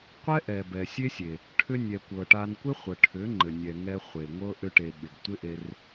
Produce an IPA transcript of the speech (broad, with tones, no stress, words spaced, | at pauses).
qʷɛ˦ʔɛ˨ bɛ˨sʲe˦sʲe˨ | ʈʰʏ˧nʲɛ˨kʷɤ˨ ʈa˧n kʷɪ˦χʷə˨ʈʰʏ˨˦ ŋ͡ǃɘ˨nʲɛ˨ŋɛ˧ χʷe˨ŋʷɤ˦ ʔʏ˧ ʈe˨ ɓɪ˨ɡ tʷɪ˦ ʔe˧r